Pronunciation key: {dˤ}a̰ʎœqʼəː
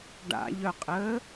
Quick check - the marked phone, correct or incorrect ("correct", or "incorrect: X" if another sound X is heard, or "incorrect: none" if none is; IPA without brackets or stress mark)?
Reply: incorrect: ɖ